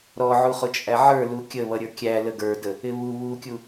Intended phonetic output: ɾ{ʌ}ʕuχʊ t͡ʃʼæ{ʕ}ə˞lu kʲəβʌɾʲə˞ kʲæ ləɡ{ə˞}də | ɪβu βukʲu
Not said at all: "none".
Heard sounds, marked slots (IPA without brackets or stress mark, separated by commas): ɔ, ʕ, ə˞